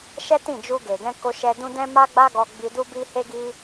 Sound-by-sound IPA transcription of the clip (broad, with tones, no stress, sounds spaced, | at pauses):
ʃ ɛ˦ t ĩ˦˨ d͡ʒ u˧ ɡ e˨ ɡ ɛ̃˧ k o˧ ʃ ɛ˧ d ũ˦ d ɛ̃˦ m a˦ ɡ͡b a˦ ɡ ɔ˧ ɡ͡b i˧ d u˦ b i˦ h e˦ ɡ i˦